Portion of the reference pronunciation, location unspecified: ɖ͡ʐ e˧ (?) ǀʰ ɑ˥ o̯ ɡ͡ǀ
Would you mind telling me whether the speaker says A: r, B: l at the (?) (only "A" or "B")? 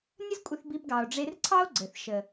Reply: A